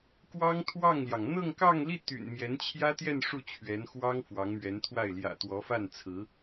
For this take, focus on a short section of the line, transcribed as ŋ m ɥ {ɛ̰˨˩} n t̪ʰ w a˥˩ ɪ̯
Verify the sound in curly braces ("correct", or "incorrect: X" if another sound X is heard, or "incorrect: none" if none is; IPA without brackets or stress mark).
incorrect: ɛ˧˥